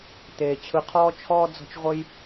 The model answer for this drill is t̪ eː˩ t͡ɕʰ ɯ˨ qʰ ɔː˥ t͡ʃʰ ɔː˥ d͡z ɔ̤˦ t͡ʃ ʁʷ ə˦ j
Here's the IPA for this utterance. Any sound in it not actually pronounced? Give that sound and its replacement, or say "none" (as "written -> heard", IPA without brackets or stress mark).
none